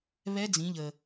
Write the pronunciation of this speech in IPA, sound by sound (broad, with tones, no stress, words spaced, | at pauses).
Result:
βɛ˧˥d͡zĩ˩˧ʎə˩